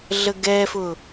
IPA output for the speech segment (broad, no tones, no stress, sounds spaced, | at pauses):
ɮ ə ɡ ɛ f ʊ